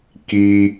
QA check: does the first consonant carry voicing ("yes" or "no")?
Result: no